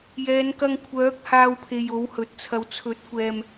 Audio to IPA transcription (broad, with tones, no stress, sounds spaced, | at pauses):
j ɛː˨˧ n k ɐ˧ ŋ kʷʰ œː˨˥ k̚ h aː˧ w pʰ e˨ j o˨˥ w h ɵ˨ t̚ t͡sʰ ɐ˨˧ w t͡sʰ ɵ˨˥ t̚ kʷ ɛː˨ m